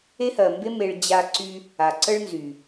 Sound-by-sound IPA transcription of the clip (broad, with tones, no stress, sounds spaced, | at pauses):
e˦ h ɜ˨ m b e˦ m e˧ ɭ d͡ʑ a˧ ǀ y˧ | a˨ ǀ ə˦ ɭ n z y˨